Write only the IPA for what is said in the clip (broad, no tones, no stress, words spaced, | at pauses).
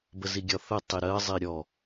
bəziɡʲɒθə tˤiɾɜ zˤiɾʲɔ